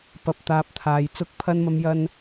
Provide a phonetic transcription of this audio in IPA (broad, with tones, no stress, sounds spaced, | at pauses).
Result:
p ɐ˧ p̚ t̪ aː˧ p̚ t̪ʰ aː˧ j t͡s ʊ˧ k̚ pʰ ɐ˧ n m ɐ˧ m j ɐ˧ n